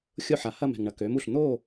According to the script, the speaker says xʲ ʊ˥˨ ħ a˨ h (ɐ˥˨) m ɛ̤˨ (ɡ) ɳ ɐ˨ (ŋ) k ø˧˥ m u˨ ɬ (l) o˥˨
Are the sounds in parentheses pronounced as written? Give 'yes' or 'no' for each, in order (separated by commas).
yes, no, no, no